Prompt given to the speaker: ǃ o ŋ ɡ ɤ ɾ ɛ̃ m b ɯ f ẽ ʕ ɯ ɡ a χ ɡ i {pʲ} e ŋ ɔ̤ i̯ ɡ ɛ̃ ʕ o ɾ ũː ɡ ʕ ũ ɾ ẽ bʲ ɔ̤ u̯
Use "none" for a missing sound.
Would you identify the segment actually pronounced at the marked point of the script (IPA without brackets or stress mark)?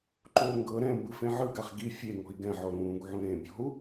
fʲ